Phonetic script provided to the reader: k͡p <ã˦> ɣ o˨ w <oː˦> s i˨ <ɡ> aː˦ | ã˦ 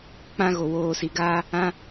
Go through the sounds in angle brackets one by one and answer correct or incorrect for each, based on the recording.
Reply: correct, incorrect, correct

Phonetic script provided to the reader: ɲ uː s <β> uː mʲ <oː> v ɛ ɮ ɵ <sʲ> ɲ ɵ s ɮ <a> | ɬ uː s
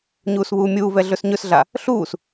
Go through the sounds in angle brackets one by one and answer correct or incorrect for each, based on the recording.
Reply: correct, incorrect, incorrect, correct

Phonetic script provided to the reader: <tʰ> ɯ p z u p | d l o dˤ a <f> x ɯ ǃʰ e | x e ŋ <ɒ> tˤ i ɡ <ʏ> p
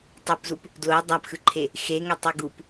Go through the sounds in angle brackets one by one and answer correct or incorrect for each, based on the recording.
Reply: incorrect, incorrect, incorrect, incorrect

